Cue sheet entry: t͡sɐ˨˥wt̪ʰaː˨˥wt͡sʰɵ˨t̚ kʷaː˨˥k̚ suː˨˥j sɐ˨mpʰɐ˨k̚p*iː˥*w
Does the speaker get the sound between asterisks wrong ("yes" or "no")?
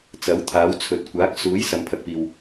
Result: yes